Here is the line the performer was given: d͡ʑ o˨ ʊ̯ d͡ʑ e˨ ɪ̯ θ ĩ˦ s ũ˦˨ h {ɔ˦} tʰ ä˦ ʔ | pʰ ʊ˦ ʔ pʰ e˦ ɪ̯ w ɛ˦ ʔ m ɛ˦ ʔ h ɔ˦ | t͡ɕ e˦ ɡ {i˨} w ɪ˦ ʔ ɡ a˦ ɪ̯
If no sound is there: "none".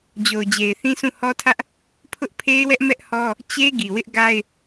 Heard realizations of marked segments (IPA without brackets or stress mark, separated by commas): ɔ˦, i˨